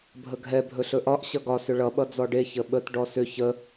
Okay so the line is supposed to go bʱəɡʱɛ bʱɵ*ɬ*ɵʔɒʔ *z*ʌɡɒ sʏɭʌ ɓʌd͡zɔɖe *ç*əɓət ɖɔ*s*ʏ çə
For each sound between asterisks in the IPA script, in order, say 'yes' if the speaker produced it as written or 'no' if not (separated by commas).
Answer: yes, no, yes, yes